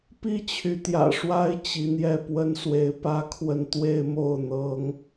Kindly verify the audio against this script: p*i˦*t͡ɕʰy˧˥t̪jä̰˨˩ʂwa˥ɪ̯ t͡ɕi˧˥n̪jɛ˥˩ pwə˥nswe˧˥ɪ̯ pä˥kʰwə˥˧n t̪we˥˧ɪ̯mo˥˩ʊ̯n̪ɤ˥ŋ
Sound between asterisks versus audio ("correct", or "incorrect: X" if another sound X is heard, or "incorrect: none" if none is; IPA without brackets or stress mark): incorrect: i˥